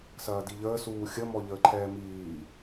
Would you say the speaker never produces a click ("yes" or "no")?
no